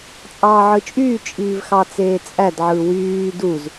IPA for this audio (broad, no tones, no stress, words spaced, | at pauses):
t͡sʼɑːʕɯt͡ʃʼyː t͡ʃʼiːvxɑt͡seːt͡sʼæd ʕɯwyː duz